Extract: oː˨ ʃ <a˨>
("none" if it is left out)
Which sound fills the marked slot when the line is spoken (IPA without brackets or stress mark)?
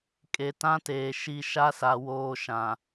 ã˨